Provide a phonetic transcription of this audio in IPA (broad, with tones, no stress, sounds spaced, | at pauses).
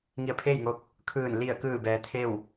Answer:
ŋ i˧˩ ə̯ pʰ eː˥˨ j ŋ o˧ k̚ | kʰ ɯː˧˩ n l i˧˩ ə̯ k ɯː˧˩ b ɛː˩˧ t̪ʰ e˥˨ w